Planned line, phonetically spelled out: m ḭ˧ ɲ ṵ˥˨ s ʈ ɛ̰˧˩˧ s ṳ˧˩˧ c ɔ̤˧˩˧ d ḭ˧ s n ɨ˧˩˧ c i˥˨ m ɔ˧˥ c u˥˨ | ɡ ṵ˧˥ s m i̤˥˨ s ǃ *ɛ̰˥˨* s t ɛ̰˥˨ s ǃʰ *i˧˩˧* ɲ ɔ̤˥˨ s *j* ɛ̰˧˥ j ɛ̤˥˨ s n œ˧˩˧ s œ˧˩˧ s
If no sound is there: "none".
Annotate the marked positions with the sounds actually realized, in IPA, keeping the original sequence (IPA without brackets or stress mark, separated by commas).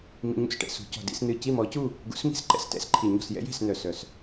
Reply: ɛ̰˥˨, i˧˩˧, j